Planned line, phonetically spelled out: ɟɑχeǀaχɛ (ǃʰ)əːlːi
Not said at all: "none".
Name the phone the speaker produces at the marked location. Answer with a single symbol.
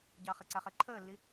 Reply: ǃʰ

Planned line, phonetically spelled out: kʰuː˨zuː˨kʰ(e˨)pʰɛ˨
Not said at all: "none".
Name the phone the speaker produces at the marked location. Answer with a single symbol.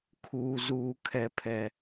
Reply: ɛ˨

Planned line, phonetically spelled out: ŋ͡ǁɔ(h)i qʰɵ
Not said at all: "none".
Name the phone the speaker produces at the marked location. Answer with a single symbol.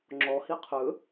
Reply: h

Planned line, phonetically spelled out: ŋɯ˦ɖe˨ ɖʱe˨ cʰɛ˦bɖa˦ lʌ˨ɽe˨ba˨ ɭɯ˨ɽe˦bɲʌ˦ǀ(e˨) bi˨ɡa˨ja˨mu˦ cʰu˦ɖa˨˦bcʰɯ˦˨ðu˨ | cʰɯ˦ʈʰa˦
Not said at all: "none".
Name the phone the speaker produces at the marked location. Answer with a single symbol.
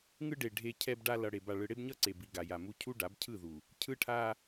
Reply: e˨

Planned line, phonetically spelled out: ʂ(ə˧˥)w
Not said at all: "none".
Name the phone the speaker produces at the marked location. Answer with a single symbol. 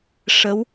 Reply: ə˧˥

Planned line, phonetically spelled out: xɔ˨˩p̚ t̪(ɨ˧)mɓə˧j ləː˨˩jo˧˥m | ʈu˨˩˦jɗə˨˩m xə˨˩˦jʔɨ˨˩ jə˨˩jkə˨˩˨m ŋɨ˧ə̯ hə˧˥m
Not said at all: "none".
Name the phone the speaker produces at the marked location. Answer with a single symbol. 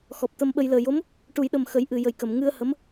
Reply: ə˧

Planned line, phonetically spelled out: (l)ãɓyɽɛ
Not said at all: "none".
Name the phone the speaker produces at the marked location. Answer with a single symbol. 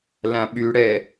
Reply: l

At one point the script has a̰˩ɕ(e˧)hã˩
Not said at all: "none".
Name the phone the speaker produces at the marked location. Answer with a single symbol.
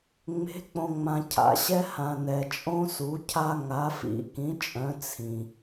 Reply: ɛ˧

